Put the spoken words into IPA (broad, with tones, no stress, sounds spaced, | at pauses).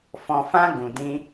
f ɔ̃˨ f ã˧ ɡ ũ˨ d ĩ˧